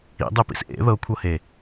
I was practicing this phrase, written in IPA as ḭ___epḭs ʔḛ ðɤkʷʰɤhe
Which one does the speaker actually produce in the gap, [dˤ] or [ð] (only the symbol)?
dˤ